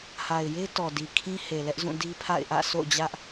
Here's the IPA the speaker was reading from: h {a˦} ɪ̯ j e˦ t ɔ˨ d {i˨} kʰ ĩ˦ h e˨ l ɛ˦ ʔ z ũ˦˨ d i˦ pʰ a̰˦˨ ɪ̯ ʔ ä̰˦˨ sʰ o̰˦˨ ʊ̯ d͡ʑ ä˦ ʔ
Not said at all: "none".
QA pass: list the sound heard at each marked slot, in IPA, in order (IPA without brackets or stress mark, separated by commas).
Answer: a˨, i˨